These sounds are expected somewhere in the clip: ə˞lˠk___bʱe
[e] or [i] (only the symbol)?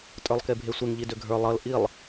e